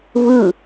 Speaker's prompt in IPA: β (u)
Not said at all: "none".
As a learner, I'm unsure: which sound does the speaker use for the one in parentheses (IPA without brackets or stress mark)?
ɯ